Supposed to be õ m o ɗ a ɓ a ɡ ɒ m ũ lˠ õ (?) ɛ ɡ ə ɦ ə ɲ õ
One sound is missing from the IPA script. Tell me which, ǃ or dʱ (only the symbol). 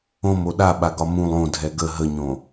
dʱ